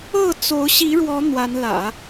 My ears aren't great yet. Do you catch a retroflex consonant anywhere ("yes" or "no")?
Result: yes